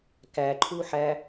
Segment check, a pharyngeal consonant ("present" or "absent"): present